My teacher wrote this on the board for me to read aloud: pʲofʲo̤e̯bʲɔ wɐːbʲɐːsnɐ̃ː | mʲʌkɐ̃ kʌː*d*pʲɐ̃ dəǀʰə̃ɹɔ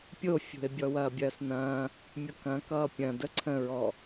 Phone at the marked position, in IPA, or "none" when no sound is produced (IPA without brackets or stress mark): none